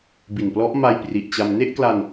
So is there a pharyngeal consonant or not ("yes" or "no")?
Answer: no